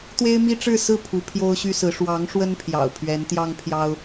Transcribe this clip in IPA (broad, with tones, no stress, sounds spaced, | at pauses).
t̪ w e˥ ɪ̯ m i˥ ʈ͡ʂ ɻ̩˥˧ s ɹ̩˥˩ pʰ u˧˥ pʰ j o˥ ʊ̯ ɕ y˥ s ɹ̩˧˥ ʂ w ɑ˧˥ ŋ ʂ w ə˥ n pʰ j ɑ̰˨˩ ʊ̯ pʰ ɥ ɛ˧˥ n t̪ j ɑ˥ ŋ pʰ j ɑ˥ ʊ̯